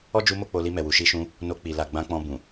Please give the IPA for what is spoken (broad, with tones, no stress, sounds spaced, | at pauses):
ɔ˦ d͡ʒ u˧ m o˧ k͡p o˧ l i˧ m ɛ˨ w u˨ ʃ i˧ ʃ ũ˧ | n o˧ k͡p i˨ l a˨ ɡ͡b ã˧ k͡p ɔ̃˧ b ũ˨